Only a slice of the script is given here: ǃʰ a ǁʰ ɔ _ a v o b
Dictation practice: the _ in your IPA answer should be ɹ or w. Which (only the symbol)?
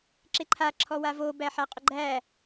w